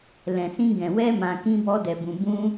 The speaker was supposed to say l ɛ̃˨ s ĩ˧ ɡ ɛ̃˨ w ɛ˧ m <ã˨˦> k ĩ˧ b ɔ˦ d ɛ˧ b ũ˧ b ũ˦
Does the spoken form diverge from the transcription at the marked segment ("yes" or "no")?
yes